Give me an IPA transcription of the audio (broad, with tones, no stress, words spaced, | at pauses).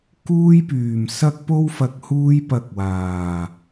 kuː˥jpyː˨˩msɐ˥k̚ po˥wfɐ˧k̚ huː˥jpɐ˧k̚waː˨˩